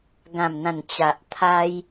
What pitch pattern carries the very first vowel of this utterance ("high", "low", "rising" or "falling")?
low